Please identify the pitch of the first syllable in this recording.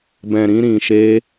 low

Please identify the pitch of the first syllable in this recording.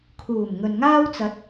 low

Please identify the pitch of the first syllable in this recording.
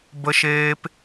high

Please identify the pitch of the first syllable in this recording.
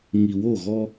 low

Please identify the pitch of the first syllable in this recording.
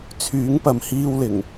rising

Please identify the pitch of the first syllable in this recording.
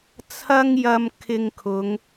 high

